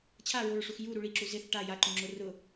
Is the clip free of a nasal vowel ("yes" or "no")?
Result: no